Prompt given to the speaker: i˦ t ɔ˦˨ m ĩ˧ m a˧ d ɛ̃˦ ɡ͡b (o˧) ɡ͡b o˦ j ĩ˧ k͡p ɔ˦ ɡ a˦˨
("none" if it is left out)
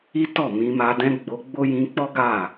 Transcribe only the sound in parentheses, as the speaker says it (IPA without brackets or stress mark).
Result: o˧